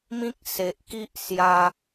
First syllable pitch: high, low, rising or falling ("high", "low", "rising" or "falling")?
high